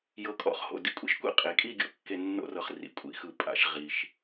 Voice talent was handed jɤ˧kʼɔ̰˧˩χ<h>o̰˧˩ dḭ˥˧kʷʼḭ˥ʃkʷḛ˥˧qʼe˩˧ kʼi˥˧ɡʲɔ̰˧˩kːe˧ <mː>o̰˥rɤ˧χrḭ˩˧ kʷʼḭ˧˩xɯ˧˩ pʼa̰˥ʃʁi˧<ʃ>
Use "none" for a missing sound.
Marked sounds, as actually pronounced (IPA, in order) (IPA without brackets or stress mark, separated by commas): h, nː, ʃ